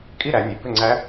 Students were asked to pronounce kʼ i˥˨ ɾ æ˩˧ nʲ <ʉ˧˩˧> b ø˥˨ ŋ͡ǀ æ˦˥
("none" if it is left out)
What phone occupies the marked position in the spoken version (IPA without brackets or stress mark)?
ʉ˩˧